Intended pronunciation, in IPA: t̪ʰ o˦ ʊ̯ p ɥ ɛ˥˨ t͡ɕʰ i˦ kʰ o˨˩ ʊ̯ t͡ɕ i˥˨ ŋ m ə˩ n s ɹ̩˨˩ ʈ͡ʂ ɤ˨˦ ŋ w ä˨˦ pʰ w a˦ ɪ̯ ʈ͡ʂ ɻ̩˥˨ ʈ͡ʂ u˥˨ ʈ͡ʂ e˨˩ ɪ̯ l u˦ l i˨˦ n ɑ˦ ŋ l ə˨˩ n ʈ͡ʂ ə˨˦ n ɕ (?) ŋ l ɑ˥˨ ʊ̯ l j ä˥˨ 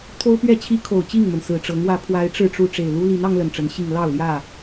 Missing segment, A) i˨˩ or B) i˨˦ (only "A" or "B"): A